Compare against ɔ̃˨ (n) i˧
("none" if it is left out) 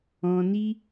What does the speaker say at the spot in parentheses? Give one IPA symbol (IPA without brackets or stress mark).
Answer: n